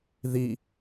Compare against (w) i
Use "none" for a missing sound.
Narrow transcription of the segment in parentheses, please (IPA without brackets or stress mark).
ð